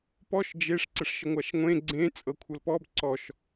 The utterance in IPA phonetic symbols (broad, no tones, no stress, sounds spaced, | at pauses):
p ɔ ʃ d͡ʒ e ʂ ǀ ə ʂ ʃ ə ŋʷ a ʃ ŋʷ ẽ ɡ͡ǀ ẽ t͡sʼ ɤ kʷʰ ɤ l p ɔ b ǀ ɔ ʃ